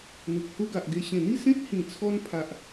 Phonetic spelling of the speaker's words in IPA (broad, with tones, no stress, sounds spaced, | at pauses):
n̪ u˨ k̚ h u˦ ɡ a˨ ʔ ɡ e˧ ɕ ẽ˨˩ n̪ i˥˧ s ẽ˦ t̚ h ĩ˨˩ t͡sʰ ɔ˧ n pʰ a˨ ʔ